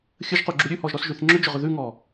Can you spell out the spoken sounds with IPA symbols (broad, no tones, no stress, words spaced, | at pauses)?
xʲəʒquɡ͡ǁu ɾʲʉhɔʒɾɔsʒʉθ ŋ͡ǁʏd͡ʒʏʁʏ ðʉŋɔ